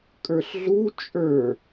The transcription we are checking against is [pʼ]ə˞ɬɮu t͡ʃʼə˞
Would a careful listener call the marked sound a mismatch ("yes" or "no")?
yes